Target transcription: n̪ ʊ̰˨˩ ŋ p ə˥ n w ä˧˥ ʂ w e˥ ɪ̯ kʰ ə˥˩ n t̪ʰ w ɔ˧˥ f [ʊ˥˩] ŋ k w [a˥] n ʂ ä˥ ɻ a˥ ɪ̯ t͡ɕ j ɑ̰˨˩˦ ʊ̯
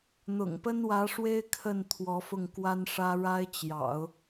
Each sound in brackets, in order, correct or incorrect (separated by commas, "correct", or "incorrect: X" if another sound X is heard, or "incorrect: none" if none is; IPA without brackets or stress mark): correct, correct